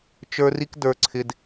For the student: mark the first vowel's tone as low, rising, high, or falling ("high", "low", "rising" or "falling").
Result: high